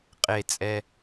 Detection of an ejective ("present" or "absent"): present